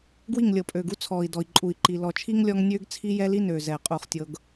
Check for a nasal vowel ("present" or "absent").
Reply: absent